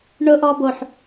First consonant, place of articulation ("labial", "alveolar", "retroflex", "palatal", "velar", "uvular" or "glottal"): retroflex